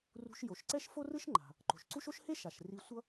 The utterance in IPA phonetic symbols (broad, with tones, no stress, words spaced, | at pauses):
rṳ˧ʃjo˩ʃǀɛ˥ʃ fo˥rɯ˥ʃŋ͡ǃa̤˩ | ǃo̤˩ʃǀu˥ʃ o˥ʃhe˥ʃ a˩ʃ ri˧sʷʌ˥